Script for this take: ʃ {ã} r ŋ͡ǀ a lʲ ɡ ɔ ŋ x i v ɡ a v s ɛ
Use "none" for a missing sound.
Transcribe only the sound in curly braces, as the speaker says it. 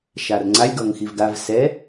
a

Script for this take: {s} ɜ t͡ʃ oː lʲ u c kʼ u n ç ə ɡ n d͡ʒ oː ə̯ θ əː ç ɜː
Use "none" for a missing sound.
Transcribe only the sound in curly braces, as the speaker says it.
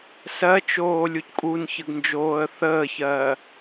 s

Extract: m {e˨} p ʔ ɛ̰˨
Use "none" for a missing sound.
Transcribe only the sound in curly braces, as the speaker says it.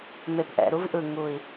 e˨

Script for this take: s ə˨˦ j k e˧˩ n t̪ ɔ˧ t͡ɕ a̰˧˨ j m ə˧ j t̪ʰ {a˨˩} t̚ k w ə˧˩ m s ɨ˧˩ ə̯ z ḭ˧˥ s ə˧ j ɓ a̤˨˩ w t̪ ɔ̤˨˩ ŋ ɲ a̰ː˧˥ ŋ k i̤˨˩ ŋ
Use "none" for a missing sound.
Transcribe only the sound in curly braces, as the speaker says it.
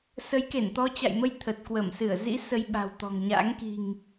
ə˨˩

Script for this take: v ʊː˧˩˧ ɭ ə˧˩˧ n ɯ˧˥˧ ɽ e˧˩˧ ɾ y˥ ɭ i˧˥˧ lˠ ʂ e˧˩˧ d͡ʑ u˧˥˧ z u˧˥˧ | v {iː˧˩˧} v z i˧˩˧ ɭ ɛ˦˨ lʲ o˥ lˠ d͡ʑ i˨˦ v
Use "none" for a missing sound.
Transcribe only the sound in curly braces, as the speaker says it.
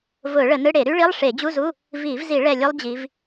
iː˧˩˧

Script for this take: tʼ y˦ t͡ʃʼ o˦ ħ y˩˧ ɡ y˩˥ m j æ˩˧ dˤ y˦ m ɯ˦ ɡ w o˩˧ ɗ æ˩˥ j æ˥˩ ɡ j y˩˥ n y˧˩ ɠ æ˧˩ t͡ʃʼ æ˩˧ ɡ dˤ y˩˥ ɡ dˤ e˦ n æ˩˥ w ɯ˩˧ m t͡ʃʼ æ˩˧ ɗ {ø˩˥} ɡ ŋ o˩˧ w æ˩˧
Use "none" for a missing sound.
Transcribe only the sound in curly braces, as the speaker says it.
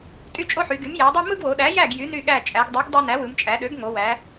ø˩˥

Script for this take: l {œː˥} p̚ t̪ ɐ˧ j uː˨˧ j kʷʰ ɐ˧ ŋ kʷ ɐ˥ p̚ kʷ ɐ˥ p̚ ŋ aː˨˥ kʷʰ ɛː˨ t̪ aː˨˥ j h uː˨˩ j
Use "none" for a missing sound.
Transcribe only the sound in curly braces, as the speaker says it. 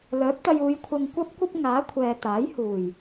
œː˨˥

